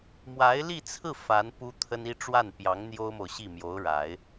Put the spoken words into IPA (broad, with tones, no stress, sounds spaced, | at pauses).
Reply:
m w a˧˥ ɪ̯ l i˥˧ t͡sʰ ɹ̩˥˩ f a˧˥ n p u˥ t̪ʰ ə˥ n i˥ ʈ͡ʂ w a˥˩ n p j ɑ˧˥ ŋ n̪ j o˥ ʊ̯ m o˨ ʊ̯ ɕ i˥˩ m j o˧˥ ʊ̯ ɻ a˨˩˦ ɪ̯